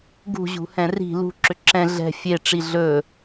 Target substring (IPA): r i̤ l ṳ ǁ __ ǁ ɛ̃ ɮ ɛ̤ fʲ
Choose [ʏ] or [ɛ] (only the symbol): ʏ